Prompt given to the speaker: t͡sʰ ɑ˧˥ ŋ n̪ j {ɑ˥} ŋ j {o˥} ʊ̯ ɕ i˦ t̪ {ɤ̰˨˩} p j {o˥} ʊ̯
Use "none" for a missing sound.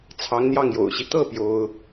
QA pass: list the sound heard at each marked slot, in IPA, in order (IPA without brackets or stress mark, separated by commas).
ɑ˥˩, o̰˨˩, ɤ˥˩, o˥